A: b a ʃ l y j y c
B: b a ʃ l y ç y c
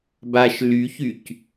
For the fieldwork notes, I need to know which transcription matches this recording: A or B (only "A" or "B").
B